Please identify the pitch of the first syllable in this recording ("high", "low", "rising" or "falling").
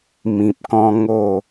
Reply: low